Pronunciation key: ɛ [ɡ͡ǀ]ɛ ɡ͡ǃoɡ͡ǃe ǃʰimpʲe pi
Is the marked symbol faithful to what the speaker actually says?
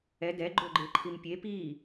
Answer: no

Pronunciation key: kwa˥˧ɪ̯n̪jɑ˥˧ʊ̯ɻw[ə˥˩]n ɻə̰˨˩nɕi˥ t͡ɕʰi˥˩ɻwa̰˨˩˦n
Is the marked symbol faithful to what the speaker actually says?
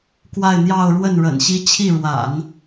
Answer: yes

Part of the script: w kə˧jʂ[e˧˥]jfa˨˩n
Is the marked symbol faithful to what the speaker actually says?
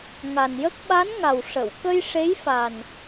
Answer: yes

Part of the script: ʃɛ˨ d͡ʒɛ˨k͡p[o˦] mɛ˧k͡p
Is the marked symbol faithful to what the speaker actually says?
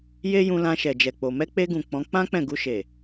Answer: no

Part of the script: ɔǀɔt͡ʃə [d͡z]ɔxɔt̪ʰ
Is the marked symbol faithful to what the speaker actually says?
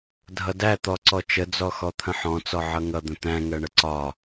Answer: yes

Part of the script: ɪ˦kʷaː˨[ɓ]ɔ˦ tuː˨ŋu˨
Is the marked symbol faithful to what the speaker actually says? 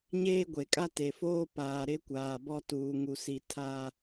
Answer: no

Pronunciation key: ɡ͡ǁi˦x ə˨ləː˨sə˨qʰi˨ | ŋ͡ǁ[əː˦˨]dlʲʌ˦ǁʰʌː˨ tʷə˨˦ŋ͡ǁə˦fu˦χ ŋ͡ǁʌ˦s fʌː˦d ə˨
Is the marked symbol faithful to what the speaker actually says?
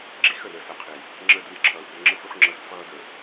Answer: yes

